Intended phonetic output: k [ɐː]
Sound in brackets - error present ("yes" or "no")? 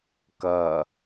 no